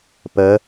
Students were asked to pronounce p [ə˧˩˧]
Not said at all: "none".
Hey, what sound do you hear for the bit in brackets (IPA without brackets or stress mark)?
ə˧˥